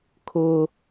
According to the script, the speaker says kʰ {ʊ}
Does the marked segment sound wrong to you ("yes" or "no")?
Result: no